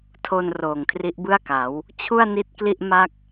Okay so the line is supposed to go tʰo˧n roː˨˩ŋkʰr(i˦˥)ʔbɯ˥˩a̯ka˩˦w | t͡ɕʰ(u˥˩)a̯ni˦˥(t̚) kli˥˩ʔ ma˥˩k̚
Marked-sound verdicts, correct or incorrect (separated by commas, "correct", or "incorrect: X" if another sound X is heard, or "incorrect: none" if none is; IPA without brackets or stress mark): correct, correct, correct